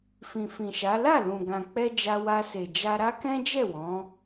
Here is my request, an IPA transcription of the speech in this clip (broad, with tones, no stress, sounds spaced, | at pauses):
f ĩ˨ f ĩ˨ ʃ a˨˦ l a˦˨ l ũ˨ ɡ ã˨ k͡p ɛ˧ d͡ʒ a˧ w a˧ s e˨ d͡ʒ a˧ ɾ a˦ k ɛ̃˦ d͡ʒ ɛ˦˨ w ɔ̃˨˦